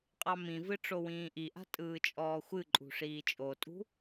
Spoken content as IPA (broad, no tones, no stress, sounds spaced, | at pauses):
qʼ ɑ m ĩ v ɨ ʈ͡ʂ o w ĩː ʔ i ʔ a̤ tʼ ɯː t͡ʃʼ ɔː xʷ ɨ ǃʼ ṳ ʂ iː t͡ʃʼ o tʼ ṳ